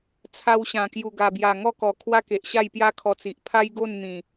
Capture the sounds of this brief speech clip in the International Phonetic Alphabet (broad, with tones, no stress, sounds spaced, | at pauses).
t͡sʰ a˧ w ɕ ã˨˩ k j u˨˩ ɡ a˨˩ b j a˨˩ ŋ ɔ˥˧ k ɔ˨˩ kʰ w a˦ k e˨ ʔ ɕ a˥˧ j p j a˦ kʰ ɔ˧ t͡s i˨ ʔ pʰ a˦ j ɡ o˥˧ n n̪ ĩ˨˩